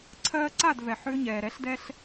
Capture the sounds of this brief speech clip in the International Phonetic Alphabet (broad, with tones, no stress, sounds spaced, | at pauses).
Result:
ǀʰ ɜː˧ ǀ a˥˩ d v ɛ˩ ħ ʏː˧ ɲ ɛː˩ ɾ ɛ˩˥ ɬ d ɛ˧ ɬ